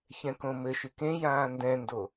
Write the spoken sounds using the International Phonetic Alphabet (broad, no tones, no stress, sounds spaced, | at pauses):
ç ɛ̃ k õ m ɘ ʃ ɨ k ẽ j ãː n d ɛ̃ n d o